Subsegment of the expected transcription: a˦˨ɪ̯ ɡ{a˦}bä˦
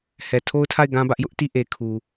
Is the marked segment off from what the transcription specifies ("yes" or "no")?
yes